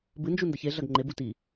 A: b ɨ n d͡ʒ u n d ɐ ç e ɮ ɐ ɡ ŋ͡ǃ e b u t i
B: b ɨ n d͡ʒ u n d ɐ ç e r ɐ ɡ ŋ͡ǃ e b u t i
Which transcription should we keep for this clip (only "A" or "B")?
A